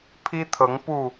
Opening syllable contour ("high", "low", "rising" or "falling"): high